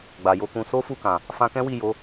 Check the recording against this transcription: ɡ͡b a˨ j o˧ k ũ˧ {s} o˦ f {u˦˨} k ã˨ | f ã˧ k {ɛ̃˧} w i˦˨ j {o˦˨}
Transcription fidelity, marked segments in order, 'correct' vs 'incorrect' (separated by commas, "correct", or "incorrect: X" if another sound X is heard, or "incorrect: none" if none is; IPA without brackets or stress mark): correct, correct, incorrect: ɛ̃˦, incorrect: o˨˦